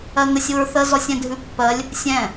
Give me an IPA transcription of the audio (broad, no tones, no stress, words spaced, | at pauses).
ɜŋəsʲ uɹθə zɔsʲɛ̃dʱʉpːɜlʲ | sʲɛ̃